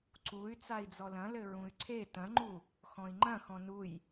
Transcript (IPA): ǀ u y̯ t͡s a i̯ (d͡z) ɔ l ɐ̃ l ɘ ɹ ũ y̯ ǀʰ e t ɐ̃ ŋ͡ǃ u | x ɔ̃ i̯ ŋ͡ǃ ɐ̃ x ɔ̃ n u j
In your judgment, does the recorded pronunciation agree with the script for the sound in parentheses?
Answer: yes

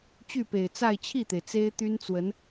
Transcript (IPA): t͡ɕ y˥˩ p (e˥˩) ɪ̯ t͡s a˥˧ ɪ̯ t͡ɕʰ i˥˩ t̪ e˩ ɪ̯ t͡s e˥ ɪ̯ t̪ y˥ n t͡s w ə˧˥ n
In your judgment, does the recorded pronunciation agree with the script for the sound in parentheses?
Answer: no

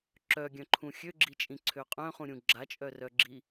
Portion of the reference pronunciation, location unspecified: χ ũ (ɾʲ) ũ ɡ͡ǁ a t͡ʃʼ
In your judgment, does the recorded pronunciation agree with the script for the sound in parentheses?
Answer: yes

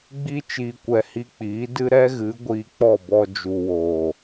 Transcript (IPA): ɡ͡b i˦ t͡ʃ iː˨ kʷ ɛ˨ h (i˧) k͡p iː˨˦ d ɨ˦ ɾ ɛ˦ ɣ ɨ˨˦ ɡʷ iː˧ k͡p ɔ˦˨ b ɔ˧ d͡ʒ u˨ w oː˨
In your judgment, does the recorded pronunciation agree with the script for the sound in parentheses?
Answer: yes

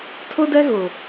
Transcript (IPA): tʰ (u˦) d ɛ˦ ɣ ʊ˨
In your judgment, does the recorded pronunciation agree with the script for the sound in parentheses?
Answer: no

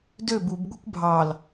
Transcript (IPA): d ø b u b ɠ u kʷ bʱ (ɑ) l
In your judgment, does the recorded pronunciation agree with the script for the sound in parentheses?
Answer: yes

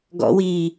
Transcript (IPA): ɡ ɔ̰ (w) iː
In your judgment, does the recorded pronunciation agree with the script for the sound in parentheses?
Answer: yes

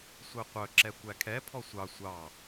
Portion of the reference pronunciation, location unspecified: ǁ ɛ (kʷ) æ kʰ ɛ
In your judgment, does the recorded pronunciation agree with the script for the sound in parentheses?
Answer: yes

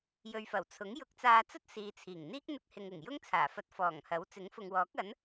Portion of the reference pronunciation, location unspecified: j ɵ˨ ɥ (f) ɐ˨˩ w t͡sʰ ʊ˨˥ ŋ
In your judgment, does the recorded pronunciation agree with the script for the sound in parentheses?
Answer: yes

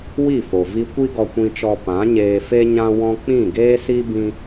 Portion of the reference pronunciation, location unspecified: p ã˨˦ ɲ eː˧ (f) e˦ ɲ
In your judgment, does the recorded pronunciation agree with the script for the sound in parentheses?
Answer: yes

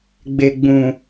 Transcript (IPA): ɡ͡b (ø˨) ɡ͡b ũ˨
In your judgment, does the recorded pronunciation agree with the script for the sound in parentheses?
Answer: no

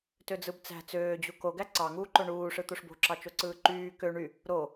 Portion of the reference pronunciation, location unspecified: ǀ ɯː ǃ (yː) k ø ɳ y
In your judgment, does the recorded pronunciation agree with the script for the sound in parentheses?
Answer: yes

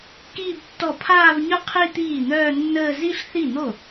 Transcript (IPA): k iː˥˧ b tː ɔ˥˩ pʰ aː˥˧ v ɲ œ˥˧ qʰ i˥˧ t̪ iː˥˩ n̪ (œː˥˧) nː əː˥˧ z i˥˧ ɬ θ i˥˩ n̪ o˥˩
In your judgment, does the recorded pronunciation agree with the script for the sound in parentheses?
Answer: yes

